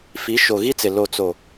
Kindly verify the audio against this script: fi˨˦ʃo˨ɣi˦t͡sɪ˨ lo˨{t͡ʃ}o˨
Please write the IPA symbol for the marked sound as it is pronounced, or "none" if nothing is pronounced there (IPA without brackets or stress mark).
t͡s